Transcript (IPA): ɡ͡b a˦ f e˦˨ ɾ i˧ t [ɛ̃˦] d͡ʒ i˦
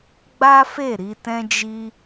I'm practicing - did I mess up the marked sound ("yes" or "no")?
no